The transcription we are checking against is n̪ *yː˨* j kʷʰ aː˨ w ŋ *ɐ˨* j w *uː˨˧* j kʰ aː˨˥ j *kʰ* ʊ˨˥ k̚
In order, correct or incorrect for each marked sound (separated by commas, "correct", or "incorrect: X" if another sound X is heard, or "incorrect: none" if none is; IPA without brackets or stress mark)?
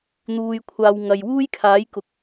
incorrect: uː˨, correct, incorrect: uː˥, incorrect: k